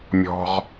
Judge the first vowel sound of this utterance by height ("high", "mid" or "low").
mid